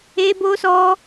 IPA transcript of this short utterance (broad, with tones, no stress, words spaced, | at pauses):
e˦bo˦sɔ˦